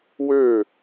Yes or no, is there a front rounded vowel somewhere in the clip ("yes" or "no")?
yes